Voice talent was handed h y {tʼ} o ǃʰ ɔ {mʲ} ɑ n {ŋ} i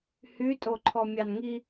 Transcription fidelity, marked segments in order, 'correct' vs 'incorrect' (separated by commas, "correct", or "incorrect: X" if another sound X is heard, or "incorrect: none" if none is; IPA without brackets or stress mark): correct, correct, correct